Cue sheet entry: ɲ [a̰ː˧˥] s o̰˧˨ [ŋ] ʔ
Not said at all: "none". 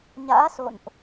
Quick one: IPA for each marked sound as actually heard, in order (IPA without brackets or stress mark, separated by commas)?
a̰ː˧˥, n